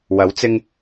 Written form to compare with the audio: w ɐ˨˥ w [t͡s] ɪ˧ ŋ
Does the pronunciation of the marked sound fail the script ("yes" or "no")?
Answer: no